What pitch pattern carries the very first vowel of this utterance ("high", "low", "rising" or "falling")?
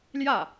falling